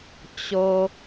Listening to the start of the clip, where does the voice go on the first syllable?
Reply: low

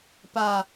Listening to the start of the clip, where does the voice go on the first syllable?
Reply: low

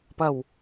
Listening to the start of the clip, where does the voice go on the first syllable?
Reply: low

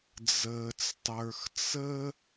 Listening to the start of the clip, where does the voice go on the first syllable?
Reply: low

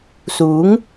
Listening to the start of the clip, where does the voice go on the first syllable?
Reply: rising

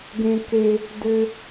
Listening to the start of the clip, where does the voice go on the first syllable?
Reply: high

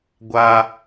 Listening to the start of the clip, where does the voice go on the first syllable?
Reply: high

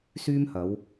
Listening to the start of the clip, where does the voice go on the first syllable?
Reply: high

